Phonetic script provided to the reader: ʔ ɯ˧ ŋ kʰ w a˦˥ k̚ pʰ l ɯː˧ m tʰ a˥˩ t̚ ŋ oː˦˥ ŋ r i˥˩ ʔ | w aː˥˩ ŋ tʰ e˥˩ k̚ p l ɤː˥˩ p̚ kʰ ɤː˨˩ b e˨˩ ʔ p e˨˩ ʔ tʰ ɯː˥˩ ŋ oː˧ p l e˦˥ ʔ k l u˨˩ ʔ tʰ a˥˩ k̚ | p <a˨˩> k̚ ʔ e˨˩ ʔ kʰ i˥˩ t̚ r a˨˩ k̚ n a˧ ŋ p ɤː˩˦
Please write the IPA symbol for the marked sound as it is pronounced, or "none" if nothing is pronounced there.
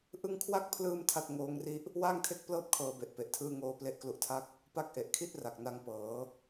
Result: a˥˩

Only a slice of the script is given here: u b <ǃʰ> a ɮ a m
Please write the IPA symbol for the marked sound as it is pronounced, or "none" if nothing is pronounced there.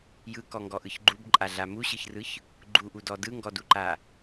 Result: ǃʼ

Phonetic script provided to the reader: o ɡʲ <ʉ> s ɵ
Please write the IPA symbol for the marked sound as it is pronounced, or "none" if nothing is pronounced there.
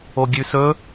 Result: ʉ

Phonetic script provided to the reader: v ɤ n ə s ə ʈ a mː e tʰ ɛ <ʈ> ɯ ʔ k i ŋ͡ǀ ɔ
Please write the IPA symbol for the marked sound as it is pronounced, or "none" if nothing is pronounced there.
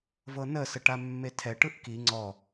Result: ʈ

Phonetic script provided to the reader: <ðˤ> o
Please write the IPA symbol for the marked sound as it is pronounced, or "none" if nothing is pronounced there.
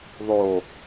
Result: ðˤ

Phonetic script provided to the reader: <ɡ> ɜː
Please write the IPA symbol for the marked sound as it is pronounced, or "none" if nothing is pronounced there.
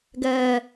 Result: ɡ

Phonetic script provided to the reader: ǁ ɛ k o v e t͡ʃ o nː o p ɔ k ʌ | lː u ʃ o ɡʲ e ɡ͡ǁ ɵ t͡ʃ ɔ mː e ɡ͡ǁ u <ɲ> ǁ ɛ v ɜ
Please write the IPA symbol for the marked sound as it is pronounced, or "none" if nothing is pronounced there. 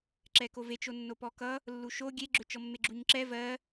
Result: ɲ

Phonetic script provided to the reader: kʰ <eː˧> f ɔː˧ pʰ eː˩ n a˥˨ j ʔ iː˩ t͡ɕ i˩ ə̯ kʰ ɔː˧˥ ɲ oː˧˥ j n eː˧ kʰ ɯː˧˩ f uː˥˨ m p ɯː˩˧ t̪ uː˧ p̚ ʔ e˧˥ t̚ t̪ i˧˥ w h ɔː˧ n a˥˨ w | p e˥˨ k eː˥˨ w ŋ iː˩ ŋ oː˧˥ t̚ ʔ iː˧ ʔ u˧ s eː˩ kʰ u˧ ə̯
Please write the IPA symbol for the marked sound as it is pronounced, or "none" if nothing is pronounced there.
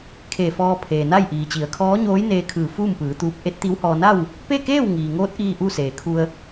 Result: eː˧˩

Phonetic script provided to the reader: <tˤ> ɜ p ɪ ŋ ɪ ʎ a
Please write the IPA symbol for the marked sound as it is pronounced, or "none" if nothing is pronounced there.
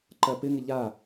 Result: ǃ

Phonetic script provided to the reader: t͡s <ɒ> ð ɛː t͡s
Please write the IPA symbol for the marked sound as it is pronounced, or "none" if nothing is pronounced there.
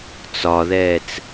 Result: ɒ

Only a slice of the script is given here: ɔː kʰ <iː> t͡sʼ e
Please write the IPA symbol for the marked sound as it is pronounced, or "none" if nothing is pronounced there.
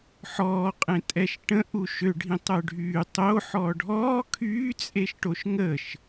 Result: yː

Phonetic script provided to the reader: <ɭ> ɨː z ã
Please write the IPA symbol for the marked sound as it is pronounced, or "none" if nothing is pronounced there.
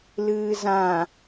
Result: l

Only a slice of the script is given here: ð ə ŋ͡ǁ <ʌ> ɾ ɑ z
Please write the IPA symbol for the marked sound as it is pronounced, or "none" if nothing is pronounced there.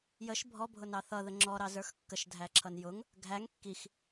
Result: ɔ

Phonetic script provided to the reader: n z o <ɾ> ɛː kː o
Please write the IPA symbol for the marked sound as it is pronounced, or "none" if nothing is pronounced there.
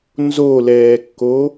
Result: l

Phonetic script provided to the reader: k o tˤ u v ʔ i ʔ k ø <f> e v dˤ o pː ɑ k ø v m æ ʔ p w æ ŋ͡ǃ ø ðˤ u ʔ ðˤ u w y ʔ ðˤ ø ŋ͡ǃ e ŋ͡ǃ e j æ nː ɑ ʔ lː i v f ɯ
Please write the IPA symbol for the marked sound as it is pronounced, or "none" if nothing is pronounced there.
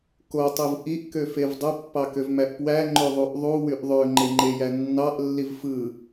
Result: f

